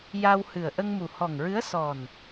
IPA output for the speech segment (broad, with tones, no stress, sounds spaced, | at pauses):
j a˧ w h ɨ˨˩ ə̯ ʔ ə˧ ŋ m u˨˩ h ɔ˨˩ ŋ ɹ ɨ˧˥ ə̯ s ɔ˨˩ n